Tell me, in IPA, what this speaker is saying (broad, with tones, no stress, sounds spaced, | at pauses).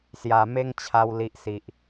s j a˨˩ m e˦ ŋ t͡ɕʰ a˧ w l i˨ ʔ s i˨ ʔ